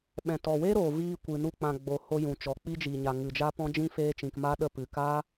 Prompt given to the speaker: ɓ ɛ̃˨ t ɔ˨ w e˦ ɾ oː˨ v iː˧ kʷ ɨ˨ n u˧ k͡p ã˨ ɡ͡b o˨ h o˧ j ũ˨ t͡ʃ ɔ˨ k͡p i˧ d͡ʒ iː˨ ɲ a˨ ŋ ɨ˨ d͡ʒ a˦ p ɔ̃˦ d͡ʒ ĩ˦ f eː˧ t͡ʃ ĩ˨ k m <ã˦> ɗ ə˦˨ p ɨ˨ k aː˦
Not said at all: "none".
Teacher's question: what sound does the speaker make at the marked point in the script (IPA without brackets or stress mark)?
a˦